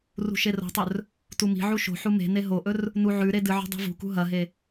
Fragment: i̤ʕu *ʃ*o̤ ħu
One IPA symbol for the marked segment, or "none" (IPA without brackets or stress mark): ʃ